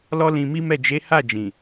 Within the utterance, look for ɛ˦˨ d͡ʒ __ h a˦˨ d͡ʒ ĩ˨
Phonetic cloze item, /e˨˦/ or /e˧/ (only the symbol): e˨˦